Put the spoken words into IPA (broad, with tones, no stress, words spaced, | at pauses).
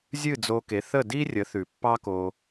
zʲɨ˥˩d͡zo˧ke˩˥ θə˥˩di˥rʲə˩˥ θʉ˩pːɑ˥ko˧